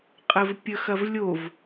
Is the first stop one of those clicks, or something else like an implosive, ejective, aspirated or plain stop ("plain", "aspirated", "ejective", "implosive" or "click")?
ejective